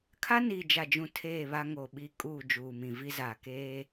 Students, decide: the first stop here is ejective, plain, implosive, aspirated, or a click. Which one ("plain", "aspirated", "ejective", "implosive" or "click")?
aspirated